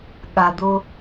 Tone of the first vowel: low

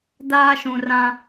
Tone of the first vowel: high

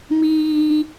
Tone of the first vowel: high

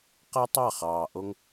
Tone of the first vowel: high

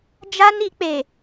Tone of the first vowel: high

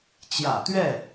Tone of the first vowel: low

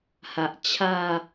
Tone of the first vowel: low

